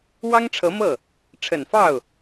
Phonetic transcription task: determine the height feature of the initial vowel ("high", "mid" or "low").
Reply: low